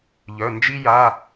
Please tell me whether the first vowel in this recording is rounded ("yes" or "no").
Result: yes